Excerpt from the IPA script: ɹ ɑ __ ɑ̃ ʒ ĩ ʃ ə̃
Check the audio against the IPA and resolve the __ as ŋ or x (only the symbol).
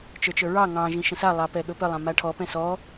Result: ŋ